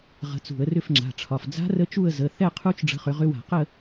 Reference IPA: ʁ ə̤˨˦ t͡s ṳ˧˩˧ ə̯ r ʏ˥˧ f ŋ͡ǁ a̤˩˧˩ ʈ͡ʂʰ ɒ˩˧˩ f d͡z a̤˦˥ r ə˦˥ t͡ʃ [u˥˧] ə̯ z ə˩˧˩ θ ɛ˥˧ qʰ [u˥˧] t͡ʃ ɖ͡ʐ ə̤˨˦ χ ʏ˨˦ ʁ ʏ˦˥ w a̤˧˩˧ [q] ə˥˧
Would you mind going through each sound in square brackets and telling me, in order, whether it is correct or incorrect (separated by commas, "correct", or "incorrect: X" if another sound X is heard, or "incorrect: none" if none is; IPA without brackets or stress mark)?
correct, incorrect: u˦˥, correct